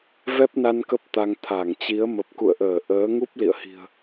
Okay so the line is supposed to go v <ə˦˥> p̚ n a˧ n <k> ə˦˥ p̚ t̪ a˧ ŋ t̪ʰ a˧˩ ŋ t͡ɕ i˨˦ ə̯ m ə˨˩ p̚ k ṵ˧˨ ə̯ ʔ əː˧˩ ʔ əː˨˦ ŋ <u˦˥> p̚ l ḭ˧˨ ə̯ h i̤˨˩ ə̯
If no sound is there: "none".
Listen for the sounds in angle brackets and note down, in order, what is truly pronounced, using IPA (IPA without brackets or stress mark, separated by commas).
ɛ˦˥, k, u˦˥